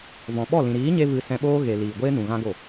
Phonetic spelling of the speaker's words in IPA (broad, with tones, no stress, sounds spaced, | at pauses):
v ɔ̃˨ ɓ ɔ˦˨ l ĩ˨ ɾ iː˨˦ ɲ e˧ v ɨ˧ s ɛ̃˧ ɓ oː˦ ɣ e˨ l iː˨ ɡʷ eː˦ n ũ˨ ɣ ã˦ ɡ o˦˨